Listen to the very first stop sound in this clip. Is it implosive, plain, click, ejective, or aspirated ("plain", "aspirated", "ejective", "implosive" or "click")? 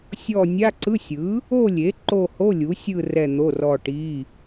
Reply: click